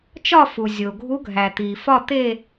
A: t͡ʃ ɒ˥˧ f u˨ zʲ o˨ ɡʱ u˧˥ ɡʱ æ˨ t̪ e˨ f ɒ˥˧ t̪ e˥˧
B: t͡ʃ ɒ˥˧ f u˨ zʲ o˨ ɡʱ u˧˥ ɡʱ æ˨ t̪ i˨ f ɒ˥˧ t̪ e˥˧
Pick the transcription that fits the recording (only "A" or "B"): B